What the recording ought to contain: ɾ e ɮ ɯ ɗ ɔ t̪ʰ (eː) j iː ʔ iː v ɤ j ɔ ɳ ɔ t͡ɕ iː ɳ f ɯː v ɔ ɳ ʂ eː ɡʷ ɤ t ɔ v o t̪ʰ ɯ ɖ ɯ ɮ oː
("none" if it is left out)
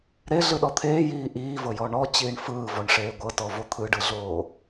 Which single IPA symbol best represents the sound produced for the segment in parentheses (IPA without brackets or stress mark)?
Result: eː